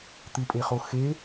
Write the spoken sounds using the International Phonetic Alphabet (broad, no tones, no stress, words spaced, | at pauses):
t̪ɨpʼeχo xe